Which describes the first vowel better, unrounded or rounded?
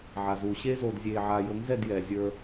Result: unrounded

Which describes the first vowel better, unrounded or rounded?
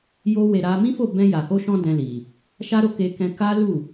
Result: rounded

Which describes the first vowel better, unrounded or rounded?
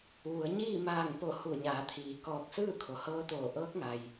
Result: rounded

